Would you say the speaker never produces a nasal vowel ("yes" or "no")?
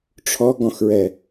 no